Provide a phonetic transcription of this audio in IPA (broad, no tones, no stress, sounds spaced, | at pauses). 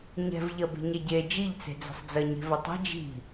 ɲ ɛ̤ v ʎ ɐ b e̤ ɲ ɛ ɟ e d͡ʒ i ʎ t͡s e̤ d͡z ɛ̤ sˤ d͡z ɜ ɲ e̤ v ɐ tˤ e̤ d͡ʒ i̤